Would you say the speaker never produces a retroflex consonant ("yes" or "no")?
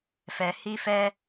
yes